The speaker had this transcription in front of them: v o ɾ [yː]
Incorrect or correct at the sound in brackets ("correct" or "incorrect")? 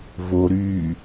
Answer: correct